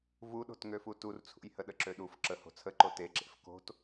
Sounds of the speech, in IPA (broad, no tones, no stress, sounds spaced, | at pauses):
v u ɗ o̤ t ŋ ø f u t u r t͡sʰ ṵ j h ə ɗ ə ǁ ø ɗ u f ǁ ə h o̤ t͡sʰ ə ǃ o t e ǁ ḛ f k o̤ t